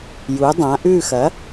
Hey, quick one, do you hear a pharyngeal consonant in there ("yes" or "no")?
no